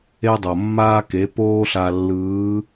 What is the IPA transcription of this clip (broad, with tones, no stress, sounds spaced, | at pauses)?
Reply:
e˧ dˤ o˩ mː aː˧ k e˩˧ p oː˥ ɬ a˧ lː ɯː˧˥